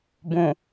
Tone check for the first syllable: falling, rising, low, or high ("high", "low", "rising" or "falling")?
low